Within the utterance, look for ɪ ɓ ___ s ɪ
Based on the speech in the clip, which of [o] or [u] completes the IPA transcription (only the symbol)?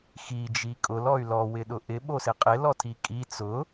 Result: o